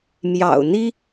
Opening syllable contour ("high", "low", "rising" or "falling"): low